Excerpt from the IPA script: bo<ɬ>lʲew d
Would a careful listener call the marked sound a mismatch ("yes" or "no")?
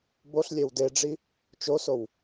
no